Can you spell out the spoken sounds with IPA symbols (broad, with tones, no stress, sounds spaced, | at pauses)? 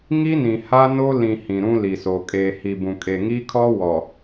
ŋ i˦ n ĩ˨ h a˦ n o˦ l ĩ˨ h ĩ˨ ɾ ũ˦ l i˨ s o˨ kʼ eː˨ h i˨ b ũ˨ kʼ e˨ ŋ i˦ kʰ ɔ˦ w ɔ˨